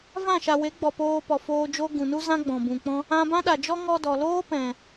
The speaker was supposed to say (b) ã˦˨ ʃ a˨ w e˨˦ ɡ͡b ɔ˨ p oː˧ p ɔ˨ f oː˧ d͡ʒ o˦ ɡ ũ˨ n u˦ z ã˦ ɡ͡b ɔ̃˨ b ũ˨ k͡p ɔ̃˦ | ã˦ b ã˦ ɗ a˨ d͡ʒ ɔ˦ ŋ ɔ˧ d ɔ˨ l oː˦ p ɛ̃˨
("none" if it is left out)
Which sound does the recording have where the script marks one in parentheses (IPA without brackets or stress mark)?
v